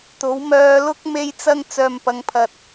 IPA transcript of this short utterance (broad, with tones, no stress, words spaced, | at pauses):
t̪o˨˥wmœː˧ lʊ˥k̚ me˧jt͡sɐ˧ŋ t͡sœː˨mpɐ˨˧ŋpʰɐ˨t̚